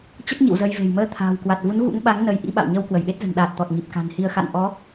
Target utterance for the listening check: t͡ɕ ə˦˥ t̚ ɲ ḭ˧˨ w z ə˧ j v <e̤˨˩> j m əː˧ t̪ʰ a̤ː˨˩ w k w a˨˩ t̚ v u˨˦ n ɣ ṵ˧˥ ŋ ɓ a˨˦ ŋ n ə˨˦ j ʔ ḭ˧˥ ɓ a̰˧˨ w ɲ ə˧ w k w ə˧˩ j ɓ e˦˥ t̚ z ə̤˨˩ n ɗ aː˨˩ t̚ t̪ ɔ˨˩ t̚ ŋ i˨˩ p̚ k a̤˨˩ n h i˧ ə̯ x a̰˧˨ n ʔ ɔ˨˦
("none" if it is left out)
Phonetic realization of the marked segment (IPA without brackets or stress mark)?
e̤˨˩